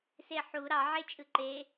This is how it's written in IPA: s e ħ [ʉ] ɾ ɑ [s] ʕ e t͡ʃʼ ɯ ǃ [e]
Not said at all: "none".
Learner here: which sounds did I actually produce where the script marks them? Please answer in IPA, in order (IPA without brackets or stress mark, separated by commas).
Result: u, none, e